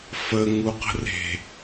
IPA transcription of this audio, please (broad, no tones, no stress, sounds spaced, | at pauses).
f ə ŋ u q ə̤ r e̤